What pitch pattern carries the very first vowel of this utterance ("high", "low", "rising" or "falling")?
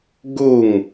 falling